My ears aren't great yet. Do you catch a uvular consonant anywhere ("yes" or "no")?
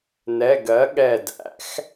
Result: no